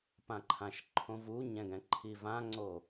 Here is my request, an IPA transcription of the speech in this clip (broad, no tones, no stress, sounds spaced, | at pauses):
p ã ǃʰ ã ʃ ǃʰ õ v u ɲ ɛ̃ ɡ ɛ̃ ǃʰ i v ã ŋ͡ǀ o